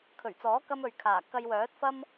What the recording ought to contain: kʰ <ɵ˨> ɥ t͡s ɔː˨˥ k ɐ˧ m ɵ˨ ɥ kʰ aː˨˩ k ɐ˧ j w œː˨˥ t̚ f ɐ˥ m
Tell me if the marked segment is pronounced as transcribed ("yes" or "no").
no